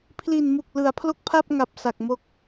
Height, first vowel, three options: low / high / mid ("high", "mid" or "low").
high